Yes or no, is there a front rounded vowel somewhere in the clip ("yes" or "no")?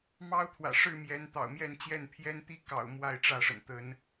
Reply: no